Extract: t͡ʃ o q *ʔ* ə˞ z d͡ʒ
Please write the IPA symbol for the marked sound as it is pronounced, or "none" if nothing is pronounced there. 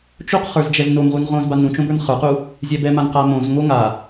χ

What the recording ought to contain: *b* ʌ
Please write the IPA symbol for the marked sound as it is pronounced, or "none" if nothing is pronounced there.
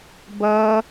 b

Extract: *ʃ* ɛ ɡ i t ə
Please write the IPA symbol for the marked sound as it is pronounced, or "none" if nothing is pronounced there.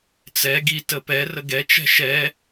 t͡s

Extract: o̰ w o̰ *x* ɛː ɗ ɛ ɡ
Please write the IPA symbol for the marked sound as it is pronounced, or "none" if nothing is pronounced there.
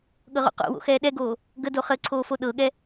x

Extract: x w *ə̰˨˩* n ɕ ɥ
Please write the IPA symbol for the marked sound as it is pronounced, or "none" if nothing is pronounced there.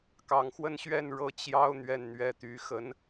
ə˥˧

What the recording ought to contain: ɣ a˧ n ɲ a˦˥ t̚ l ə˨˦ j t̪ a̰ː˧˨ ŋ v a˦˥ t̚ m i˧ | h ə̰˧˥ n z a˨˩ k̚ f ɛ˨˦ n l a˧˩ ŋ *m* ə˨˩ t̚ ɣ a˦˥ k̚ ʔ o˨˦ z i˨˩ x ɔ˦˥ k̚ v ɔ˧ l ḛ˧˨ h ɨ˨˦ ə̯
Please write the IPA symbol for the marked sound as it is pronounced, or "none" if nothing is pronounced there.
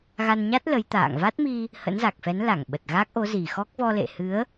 ɓ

